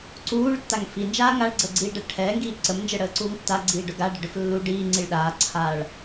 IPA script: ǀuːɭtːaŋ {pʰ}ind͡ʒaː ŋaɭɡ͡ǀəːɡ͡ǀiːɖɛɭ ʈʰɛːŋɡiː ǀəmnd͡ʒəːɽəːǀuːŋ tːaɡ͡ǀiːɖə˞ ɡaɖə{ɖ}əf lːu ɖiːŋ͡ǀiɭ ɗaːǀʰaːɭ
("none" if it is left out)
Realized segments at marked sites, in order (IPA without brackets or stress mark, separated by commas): f, ɖ